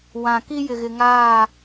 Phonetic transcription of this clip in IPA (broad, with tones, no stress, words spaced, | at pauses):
wã˨ki˦ jɪ˨ɣɪ˨ŋaː˦˨